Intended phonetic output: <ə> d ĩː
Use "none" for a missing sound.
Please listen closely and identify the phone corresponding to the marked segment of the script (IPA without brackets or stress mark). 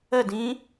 ə